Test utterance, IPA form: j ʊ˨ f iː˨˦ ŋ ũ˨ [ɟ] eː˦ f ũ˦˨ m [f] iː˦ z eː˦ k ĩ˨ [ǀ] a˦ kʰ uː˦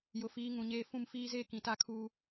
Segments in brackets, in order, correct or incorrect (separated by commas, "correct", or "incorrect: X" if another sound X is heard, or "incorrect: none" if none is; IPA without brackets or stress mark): incorrect: ɲ, correct, incorrect: t